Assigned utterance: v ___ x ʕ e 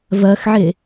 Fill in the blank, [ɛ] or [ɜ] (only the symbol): ɜ